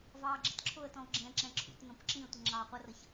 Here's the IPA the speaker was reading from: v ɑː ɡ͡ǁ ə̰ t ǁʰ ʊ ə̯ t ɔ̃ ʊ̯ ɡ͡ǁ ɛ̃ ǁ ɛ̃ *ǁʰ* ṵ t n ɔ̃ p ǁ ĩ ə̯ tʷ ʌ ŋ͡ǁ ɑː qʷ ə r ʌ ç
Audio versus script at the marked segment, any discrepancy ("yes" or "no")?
no